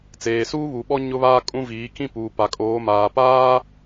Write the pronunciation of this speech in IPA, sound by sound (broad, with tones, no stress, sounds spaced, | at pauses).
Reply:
t͡s eː˨ s uː˦ β u˨ ɓ ɔ˦ ɲ ʊ˦ β aː˦ kʼ ũ˦ v iː˨˦ k ĩ˦ p uː˨ p a˨ kʼ oː˨˦ m aː˨ p aː˦